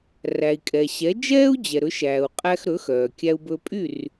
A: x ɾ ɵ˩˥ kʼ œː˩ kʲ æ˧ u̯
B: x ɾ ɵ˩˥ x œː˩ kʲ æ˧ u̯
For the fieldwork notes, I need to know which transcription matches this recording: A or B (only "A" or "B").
B